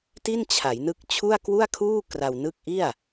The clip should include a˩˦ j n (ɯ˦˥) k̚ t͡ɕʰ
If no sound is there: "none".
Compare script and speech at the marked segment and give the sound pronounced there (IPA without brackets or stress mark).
ɯ˦˥